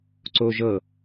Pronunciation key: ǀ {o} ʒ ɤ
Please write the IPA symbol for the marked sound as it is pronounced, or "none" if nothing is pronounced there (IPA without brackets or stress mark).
o